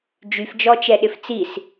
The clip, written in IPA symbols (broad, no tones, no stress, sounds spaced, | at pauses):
d͡ʒ y f d͡ʒ ɔ t͡ʃ ɛ ɗ ɪ f t͡s i s